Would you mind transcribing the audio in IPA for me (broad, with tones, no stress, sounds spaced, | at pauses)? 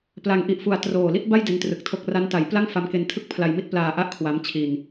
p l a˧ ŋ ʔ i˦˥ ʔ f u˧ a̯ t r oː˨˩ l i˥˩ t̚ b a˥˩ j d e˦˥ n t r ɯ˨˩ k̚ tʰ o˦˥ k̚ r a˦˥ n t a˩˦ j p l a˥˩ ŋ f a˧ m k e˧ n tʰ ɯ˥˩ k̚ pʰ l a˧ j m i˥˩ t̚ p l aː˧ ʔ a˥˩ ʔ kʰ w a˦˥ m t͡ɕʰ i˧ n